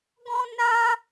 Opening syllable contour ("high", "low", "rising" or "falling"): high